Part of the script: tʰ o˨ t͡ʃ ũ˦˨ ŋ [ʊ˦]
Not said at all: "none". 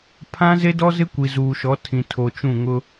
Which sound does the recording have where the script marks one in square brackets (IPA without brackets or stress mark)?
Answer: ʊ˦